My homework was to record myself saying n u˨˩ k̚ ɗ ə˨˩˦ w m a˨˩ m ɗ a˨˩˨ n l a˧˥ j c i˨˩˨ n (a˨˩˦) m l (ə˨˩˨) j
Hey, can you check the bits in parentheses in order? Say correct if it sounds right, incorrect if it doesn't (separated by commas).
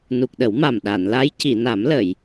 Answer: correct, correct